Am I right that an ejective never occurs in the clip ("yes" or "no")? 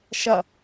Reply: yes